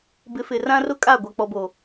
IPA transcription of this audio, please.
b ɪ˨˦ f ɪ˨ r ã˦ r ʊ˦ kʼ a˦˨ ɡʷ a˨ k͡p ɔ˨ b oː˨

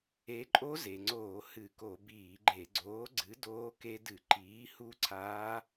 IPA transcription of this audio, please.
e˨˥ ǃʼ o˦˥ z e˩ ŋ͡ǀ oː˧˩˧ h ɨ˧˩˧ k o˧˩˧ b iː˧˩˧ ɡ͡ǃ e˧˩˧ ɡ͡ǀ oː˨˥ ɡ͡ǀ ɨ˨˥ d oː˦˥ k e˦˥ d ɨ˧˩˧ ǃ iː˨˥ h u˦˥ ǀʰ aː˦˥

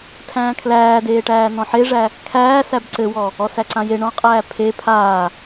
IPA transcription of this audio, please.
tʰ æ̃ː kʰ l æː d eː ʈ æː n ɔ̃ ħ e ʐ æ | kʰ æː s æ b ǀ ɘ w ɔ | ɔ s æ ǀ ã j e ɳ ɔ̃ qʼ æː pʰ e pʰ aː

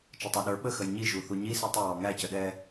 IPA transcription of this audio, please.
t͡ʃ ʌ tˤ æ ɗ ə˞ ɓ ə x ə j ɲ i ʒ u θ u ɲ i s i tˤ ə w ɔ ŋ æ c ə ɗ ɛ

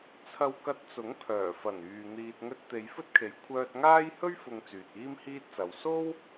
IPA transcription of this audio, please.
t͡sʰ ɐ˧ w k ɐ˧ t̚ t͡s ʊ˨˥ ŋ pʰ œː˨˩ f ɐ˨˩ n yː˨ n̪ iː˨ t̚ ŋ ɵ˧ t̚ t̪ e˨˧ j f ɵ˥ t̚ kʰ e˨ j kʷʰ œː˧ t̚ ŋ aː˥ j h ɵ˥ ɥ f ʊ˨ ŋ t͡s yː˨ t̚ iː˥ m h iː˥ t̚ t͡s ɐ˨˧ w s o˥ w

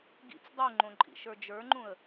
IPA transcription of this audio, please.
ɡ ḭ t͡s dˤ u ŋ͡ǃ õ ǃʼ ḭ ʃ ə˞ d͡ʒ ə˞ ŋ͡ǃ ũ ə̯

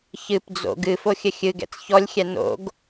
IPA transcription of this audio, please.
ç ɨ p d͡z o̰ ɡ ɨ f o xʲ ɘ xʲ ɨ ɡ ɛ̰ t͡s ç ɔ lʲ xʲ ɛ n o̰ ɡ

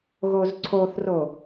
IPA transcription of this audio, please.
ɣ o z ǀʰ o θ r o

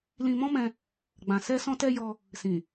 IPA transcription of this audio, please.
l ĩ˧ m ɔ̃˦ m ɛ̃˧ | ɡ͡b ã˨ s ɛ˧ s ɔ̃˧ t ɛ˧ j ɔ˧ | s ĩ˨

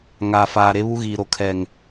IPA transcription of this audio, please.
ŋ aː˨ f aː˨ ɾ e˦ β u˦ ɣ iː˨ ɾ o˨ kʰ ɛ˨ ŋ

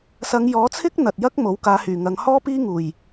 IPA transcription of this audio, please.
s ɐ˨˧ ŋ j ɔː˨˥ t͡sʰ ɪ˥ k̚ n̪ ɐ˨ t̚ j ɐ˥ k̚ m o˨˥ w k aː˨˧ h yː˨˩ ŋ ɐ˨˧ ŋ h ɔː˥ p iː˥ ŋ uː˨˩ j

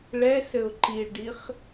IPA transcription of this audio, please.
ɭ ɛ s ɘ ʊ̯ ǃ i ɭ ɖ i χ

